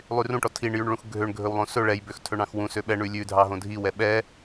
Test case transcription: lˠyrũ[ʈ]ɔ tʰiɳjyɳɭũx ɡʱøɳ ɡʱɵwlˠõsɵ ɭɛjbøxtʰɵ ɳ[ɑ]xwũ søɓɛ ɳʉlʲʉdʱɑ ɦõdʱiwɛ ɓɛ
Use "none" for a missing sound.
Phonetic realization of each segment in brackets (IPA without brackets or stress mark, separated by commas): ʈ, ɑ̃